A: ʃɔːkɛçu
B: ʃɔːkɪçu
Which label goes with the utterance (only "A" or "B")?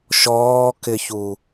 B